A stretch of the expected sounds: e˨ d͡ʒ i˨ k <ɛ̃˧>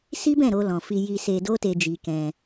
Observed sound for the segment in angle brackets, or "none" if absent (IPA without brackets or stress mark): ɛ̃˧